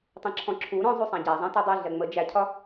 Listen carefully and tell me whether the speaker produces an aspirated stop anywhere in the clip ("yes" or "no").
yes